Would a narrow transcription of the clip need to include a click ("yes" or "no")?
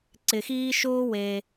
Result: yes